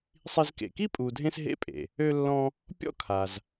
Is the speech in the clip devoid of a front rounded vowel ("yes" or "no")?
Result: no